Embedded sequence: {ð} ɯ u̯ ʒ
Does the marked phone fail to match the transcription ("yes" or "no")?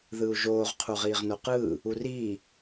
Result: no